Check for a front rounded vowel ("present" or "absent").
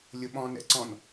absent